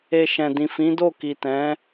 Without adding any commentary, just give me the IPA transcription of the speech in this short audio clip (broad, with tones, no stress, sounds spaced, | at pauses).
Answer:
e˨ ʃ ɛ̃˨ d ĩ˨ f ĩ˨˦ d o˦˨ k i˨ t ɛ̃˨˦